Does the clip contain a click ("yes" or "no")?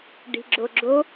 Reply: yes